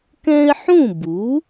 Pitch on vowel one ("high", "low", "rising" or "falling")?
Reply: high